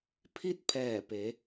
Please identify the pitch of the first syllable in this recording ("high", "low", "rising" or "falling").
falling